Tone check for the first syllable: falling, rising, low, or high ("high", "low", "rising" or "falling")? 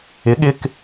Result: rising